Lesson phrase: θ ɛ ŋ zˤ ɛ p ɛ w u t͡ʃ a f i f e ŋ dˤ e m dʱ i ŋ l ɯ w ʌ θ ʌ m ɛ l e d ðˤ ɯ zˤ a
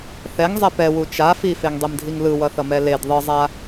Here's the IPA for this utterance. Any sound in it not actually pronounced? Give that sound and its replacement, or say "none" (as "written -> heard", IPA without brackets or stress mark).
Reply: none